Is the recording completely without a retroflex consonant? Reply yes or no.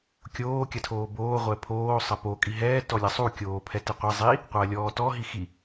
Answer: yes